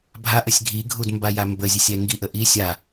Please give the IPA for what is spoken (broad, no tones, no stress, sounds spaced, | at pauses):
bʱ a ʔ ə sʲ ɡʱ i ɡʱ u d m b a j a m b ə zʲ ə sʲ ɛ ŋ ɡ i ʔ ə ʔ i sʲ a